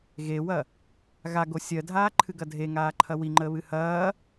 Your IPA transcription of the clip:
ɣewɐ | ɣaɡo sʲɜdʱaːǃʰɨɡɐ dʱeŋaːǃʰɐ wiŋ͡ǃəːβɨ hɐː

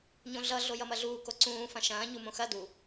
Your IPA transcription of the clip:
ɲõɮʌ ɮojʌmɐɮuː koǀũːfɐ̃ ʃɐ̃ːɲu mõxɐ du

